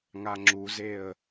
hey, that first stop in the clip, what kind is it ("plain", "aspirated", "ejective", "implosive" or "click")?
click